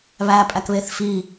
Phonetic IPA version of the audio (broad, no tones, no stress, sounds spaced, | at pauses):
β æ pʼ æ k β e θ f i